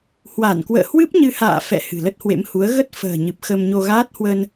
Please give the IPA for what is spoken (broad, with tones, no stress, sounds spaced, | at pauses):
h w a˧˩ n k w ə̰ː˧˨ h w ɨ˦˥ p̚ ɲ ɨ˧ h a̰ː˧˨ f ɛ̰˧˨ h ɨ̤˨˩ l ə˦˥ t̚ h w ḛ˧˥ m h u˨˦ ə̯ ɣ ə˦˥ t̚ f ə̤ː˨˩ ɲ ɨ˨˩ p̚ x ə˧ m ɲ o˧ ɣ aː˦˥ t̚ h w ə˧ n